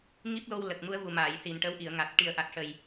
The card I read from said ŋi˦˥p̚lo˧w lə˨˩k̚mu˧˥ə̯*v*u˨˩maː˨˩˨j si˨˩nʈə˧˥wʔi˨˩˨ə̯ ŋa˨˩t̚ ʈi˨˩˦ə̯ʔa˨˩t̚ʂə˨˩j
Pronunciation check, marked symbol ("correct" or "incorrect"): correct